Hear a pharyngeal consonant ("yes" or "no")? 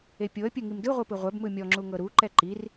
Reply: no